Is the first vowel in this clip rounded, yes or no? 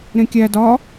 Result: no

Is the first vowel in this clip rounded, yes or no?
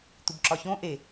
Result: yes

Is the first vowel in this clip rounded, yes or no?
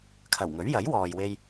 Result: no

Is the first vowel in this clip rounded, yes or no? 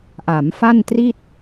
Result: no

